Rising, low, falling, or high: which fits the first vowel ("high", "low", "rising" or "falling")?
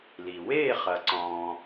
low